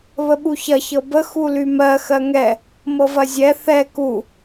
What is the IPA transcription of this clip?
β ə ɓ u ç ɐ ç ɤ b ə x u l y m ɜ x ɜ ŋ ɛ | m ɤ v ɐ zʲ ɛ θ ɛ k u

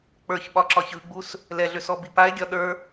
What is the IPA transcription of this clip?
k͡p ə˞ ç ɓ ɒ ǁ ɒ ç ɯ ɡ͡b u s | l ɛ ɮ ʏ s ɔ b i p a e̯ ɡʲ ɒ ɗ ə˞

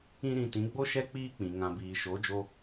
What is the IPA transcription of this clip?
ĩ˦ ɾ ĩ˧ t ĩ˨˦ ɡ͡b o˦ ʃ ɛ˦ k͡p iː˦ k͡p ĩ˨ ŋ ã˨ b iː˨ ʃ o˨˦ d͡ʒ o˧

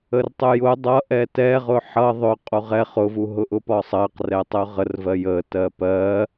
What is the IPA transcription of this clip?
ə r tˤ ʊ j ʊ dˤ ʌ ʔ ɛ t ɛ ʁ ʊ ħ ʌ ðˤ ʊ qʼ u ʁ ɛ χ ʊ v u ɦ ʊ ʔ ʊ p ɒ sˤ ɜ q r ɛ tˤ ʊ ʁ ə r v ɜ j ə t ɜ p ɜ

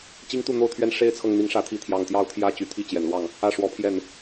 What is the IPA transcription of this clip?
t͡ɕ i˦ ŋ t̪ u˥˨ n̪ o˥˨ ʊ̯ t̪ʰ ɥ ɛ˦ n ʂ e˦ ɪ̯ t͡sʰ ɤ˨ ŋ n̪ i˨˦ ŋ ʂ ä˨˦ t̪ʰ i˨˦ t̪ʰ j ɑ˨˩ ŋ t̪ j ɑ˦ ʊ̯ t̪ʰ j ä˦ t͡ɕ y˨˩ t̪ʰ i˥˨ t͡ɕ j ɛ˨˩ n l w ɑ˥˨ ŋ | ä˥˨ ʂ w ɔ˨˦ pʰ j ɛ˥˨ n

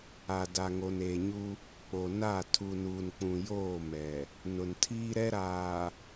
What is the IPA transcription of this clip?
a˨ d a˨ ŋ o˨ n eː˨ ɲ u˦ | k͡p o˨ n a˦˨ tʰ u˨ n uː˨ n k͡p ũ˨ j oː˦˨ m ɛ˨ | n ʊ˨ n tʰ iː˦ ɾ ɛ˦ ɾ aː˨

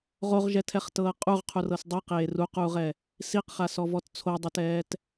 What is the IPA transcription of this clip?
ʁ o ʁ ʒ ɛ tʰ ɛ χ t ɤː qʼ u ʁ qʰ u r ɤ s dˤ ɯ q eː r u q uː ʁ ɛ | s i q χ a s ɔ v ɔ t t͡sʰ o dˤ ɤ t ɛː t

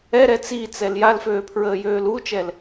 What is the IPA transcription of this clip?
ɛ ɾ ɛ t͡s i t͡s ɛ l j a l f øː pʰ ɹ əː j øː l u t͡ʃ ɛ l

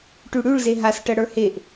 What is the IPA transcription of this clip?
ʈ ʉ ɽ ʉ ɭ z e ɦ a s ʈ ɜ ɽ ə˞ h e ʔ

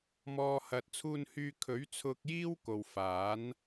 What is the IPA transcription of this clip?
m ɔː˨ h ɐ˨ t̚ t͡sʰ uː˧ n h yː˧ kʰ ɵ˨˥ ɥ t͡sʰ ʊ˧ k̚ j iː˥ w k o˨ w f aː˨˥ n

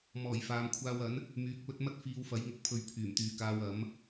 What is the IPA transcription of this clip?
m ɔː˨˩ j f aː˨ m kʷʰ aː˧ w ɐ˨˥ n | m yː˨ k̚ p ɵ˨˥ t̚ m ɐ˥ t̚ f iː˧ w f ɐ˨˥ j ŋ ʊ˨ k̚ pʰ ɵ˨ ɥ pʰ yː˨˩ m t̪ yː˨ k aː˧ w ɐ˨˥ m

